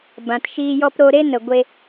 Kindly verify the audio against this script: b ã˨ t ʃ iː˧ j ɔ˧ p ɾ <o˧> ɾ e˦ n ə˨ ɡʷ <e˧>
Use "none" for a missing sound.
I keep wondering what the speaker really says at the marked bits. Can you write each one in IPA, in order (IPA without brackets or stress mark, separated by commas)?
o˧, e˧